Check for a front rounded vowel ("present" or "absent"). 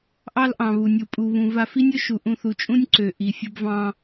present